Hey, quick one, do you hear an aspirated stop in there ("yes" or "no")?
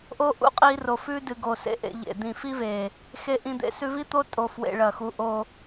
no